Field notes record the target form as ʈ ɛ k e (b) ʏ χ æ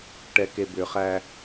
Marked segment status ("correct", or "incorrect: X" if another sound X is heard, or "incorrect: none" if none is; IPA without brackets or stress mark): correct